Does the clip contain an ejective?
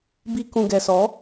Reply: no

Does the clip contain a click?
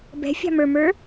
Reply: no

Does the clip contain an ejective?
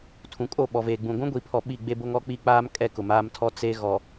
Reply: yes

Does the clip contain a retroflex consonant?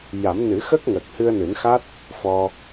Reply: no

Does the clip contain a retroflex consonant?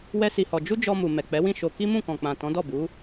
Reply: no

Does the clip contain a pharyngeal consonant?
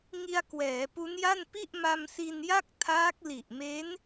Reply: no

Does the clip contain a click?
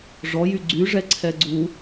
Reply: yes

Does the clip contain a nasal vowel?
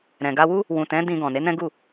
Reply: yes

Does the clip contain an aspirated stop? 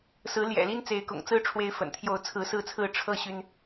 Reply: yes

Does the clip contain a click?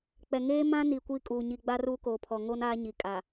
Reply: no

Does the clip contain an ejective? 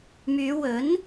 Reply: no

